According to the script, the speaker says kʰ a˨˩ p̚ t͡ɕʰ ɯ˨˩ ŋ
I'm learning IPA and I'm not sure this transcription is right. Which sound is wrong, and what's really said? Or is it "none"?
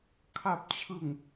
none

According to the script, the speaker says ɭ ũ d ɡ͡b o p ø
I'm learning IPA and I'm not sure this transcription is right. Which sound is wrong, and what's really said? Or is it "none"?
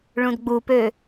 o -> u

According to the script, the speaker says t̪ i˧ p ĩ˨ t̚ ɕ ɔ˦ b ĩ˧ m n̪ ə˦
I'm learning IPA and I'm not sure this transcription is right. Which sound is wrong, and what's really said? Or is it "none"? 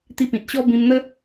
none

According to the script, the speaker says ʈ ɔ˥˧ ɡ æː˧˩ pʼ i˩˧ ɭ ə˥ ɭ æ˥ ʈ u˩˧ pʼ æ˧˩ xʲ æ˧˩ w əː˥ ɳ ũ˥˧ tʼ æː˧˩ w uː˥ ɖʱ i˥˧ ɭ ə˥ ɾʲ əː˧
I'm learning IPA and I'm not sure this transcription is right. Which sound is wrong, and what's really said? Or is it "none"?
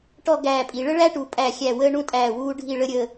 none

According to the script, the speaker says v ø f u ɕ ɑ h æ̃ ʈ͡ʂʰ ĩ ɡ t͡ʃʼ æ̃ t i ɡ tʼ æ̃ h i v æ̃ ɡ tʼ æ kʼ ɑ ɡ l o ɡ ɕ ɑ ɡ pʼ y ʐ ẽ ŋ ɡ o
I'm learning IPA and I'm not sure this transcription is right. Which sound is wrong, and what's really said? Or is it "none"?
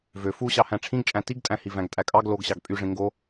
none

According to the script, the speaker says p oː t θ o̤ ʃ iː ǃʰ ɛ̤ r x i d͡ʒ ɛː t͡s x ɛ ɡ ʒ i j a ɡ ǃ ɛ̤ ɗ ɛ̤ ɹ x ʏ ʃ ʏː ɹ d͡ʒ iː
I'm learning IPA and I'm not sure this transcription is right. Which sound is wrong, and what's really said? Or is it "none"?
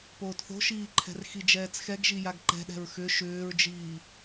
none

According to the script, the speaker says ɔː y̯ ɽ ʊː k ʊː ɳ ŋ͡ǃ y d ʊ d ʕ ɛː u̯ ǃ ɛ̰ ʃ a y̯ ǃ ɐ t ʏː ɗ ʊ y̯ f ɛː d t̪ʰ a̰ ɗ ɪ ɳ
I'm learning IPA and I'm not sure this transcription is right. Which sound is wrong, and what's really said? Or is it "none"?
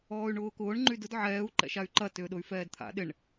ɽ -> ɳ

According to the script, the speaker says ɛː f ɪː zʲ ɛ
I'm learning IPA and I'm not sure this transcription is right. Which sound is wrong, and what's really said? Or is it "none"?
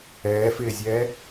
none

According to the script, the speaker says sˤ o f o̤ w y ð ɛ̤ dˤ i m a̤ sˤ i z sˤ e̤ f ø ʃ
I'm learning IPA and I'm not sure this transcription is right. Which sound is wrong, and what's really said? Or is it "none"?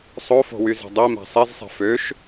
ð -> z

